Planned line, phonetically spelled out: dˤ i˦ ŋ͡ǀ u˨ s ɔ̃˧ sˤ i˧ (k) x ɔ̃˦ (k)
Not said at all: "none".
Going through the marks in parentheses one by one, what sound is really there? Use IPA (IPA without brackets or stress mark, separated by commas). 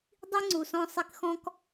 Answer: k, k